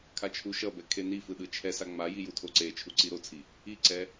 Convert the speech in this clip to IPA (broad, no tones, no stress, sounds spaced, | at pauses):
kʰ a t͡ʃʰ u ʃ ʌ b ɛ kʰ e n i f ɯ ɗ ɯ t͡ʃʰ ɛ s a ŋ͡m a j i j u tʰ o ǀ e t͡ʃʰ u ǀ i ɾ o t͡sʰ i | i ǀ ɛ